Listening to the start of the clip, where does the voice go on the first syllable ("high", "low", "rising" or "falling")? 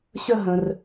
falling